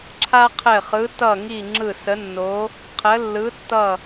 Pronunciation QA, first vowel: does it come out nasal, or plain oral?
oral